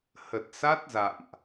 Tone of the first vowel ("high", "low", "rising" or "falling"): low